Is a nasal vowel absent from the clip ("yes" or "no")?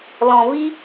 no